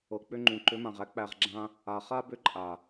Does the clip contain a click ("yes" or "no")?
yes